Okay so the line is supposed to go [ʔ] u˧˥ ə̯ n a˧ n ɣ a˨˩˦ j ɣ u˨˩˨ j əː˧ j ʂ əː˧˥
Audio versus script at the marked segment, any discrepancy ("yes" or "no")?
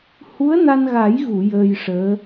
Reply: yes